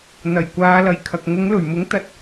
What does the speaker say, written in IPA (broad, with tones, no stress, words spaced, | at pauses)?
n̪ɐ˨˩jkʷaː˨˧lɐ˨jkʰɐ˨k̚ ŋʊ˨˧ŋlɵ˨˩ɥmʊ˨˥ŋ t̪ɐ˨˥t̚